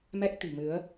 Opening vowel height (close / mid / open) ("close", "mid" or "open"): mid